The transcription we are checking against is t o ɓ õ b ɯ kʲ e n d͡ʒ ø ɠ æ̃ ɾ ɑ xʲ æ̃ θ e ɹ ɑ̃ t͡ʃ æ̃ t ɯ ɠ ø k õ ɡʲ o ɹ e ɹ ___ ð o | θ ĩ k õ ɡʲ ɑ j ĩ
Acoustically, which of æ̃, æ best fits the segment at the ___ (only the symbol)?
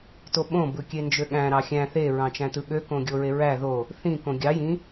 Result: æ